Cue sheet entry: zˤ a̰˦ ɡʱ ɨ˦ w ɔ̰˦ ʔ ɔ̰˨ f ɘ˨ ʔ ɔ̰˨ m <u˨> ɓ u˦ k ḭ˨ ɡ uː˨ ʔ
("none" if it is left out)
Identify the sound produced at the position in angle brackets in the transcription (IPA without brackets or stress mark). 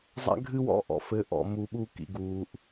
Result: u˨